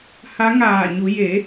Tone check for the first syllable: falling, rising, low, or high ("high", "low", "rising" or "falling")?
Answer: rising